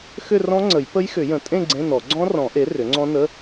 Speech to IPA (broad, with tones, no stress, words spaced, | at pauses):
xʏ˥˧rɔ̃˦˥ŋ͡ǀə˨˩˦j pə˦˥jxʏ˨˩˦jə̃˨˩˦tʼẽ˥˧ ɡ͡ǀẽ˧˥˧nɔ˨˩˦ ɡ͡ǀɔ̃˦˥rɔ̃˨˩˦ʔe˩˥ rʏ˩˥ŋ͡ǀɔ̃˦˥nə˧˥˧